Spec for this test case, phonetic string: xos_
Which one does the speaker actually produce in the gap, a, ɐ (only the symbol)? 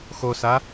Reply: a